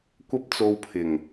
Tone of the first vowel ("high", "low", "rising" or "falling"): high